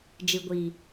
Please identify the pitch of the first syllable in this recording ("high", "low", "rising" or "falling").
low